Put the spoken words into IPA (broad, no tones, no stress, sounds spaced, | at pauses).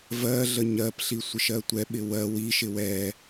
v ɜ ɮ ə ɲ ɜ p ɬ i sʷ ɪ ʃ ɜ tʷ ɛ ɓ ɪ w ɜ w i ʃ ɪ w ɛ